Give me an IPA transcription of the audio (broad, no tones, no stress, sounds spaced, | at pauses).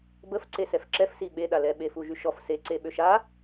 b ə f ǀ e s ɛ f ǁ ɛ f s i ɓ e ɗ a l ɛ ɓ e f u ʒ y ʃ ɔ f s e ǀ e ɓ ø ʃ a